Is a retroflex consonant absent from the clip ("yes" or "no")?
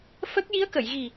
yes